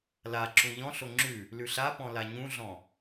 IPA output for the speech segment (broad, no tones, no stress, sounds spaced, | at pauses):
l a ǁ ũ ʎ ɔ̃ ɬ o ŋ͡ǁ ʉ | l ʉ ɬ a p ɔ̃ l a ɲ ũ ɮ ɔ̃